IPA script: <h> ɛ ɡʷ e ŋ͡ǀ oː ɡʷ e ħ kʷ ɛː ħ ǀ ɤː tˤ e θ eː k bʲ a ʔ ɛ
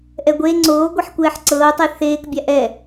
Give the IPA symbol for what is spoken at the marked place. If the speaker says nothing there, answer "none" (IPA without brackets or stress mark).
ʔ